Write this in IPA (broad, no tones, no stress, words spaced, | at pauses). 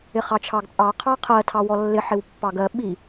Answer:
ɪχɑt͡ʃʰɑɡt͡sʼɑ qʰɑqʰɜ tʰɑwɔlːɪ ħɪwpːɑɡɜ ɓi